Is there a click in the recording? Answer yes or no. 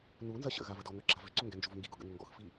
yes